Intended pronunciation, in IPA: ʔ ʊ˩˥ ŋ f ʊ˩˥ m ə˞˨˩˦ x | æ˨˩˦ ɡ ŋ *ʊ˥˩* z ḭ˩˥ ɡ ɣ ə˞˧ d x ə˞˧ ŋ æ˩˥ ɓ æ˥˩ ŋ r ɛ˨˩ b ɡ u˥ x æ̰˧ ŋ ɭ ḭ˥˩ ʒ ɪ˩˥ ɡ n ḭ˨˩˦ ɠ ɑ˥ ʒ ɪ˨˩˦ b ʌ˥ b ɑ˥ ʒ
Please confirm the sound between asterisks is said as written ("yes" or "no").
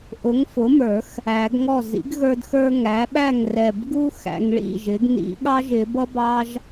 no